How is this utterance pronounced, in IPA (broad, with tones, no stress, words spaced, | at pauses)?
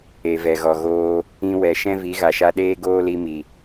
e˨vɛ˨ɣɔ˨ɣoː˧ | ĩ˧wɛ˨ ʃɛ̃˦vi˨˦ɣa˨ʃa˦ ɗeː˦ɡoː˦li˧mi˨